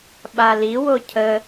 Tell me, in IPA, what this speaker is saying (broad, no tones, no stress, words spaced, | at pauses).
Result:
ɓaliwo cʰə